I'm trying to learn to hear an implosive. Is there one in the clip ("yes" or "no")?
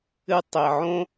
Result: no